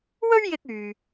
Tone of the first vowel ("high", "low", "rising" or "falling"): high